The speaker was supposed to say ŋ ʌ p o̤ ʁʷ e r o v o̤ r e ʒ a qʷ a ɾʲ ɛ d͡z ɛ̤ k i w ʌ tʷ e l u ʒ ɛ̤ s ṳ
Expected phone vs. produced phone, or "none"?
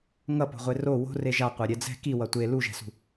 v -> w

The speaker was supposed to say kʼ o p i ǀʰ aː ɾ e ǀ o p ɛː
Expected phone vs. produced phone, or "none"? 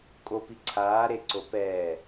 none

